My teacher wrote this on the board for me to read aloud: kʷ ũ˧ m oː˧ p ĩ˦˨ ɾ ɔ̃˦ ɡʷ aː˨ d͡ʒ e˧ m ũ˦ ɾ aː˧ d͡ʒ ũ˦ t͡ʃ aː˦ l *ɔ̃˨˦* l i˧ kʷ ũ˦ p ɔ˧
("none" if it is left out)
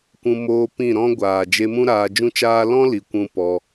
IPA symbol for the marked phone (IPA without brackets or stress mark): ɔ̃˦